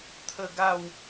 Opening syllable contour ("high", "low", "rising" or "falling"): falling